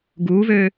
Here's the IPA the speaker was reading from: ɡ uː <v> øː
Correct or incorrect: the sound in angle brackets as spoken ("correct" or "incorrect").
correct